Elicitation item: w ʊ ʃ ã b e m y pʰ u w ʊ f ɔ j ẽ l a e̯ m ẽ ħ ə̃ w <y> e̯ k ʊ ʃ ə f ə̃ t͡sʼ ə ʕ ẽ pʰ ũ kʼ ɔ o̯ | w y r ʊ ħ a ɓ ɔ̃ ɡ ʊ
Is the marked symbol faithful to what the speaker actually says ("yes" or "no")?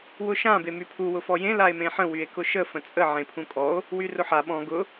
yes